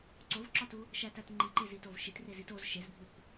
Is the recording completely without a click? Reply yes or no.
no